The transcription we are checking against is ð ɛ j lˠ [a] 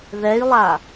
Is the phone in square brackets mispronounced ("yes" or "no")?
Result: no